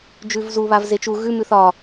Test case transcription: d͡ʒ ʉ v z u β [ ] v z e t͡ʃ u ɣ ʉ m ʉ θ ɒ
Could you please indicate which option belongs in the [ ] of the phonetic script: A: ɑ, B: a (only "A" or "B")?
B